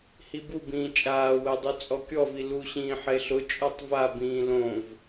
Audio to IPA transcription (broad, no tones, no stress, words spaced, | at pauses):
hibubĩː t͡ʃʼaːwɛdˤu t͡sʼɔkʲɔvi luɕĩː ħeɬʊ t͡ʃʼɔtˤvabĩː lõv